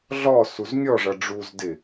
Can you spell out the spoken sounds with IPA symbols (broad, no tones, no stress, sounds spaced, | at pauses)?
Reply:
ɮ ɔ s u z nʲ ɔ ʐ ʌ ɖ͡ʐ u z d ɪ